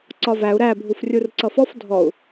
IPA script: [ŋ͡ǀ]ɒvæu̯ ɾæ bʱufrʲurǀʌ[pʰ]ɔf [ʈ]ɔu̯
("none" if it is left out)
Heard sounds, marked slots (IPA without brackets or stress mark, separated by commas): ǀ, f, dʱ